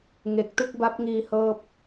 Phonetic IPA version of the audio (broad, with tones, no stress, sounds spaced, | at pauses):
ŋ e˨˩ k̚ t ɯ˥˩ k̚ b a˦˥ p̚ ŋ iː˧ h ɤː˥˩ p̚